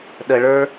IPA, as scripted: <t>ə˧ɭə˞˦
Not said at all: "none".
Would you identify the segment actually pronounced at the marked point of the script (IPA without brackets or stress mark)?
ɗ